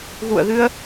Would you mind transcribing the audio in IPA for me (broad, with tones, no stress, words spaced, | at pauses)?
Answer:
ɣṵ˧˨ə̯ɣɨ˧ə̯